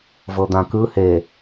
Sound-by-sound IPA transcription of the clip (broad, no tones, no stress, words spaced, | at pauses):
vɤd̪ãkɯ he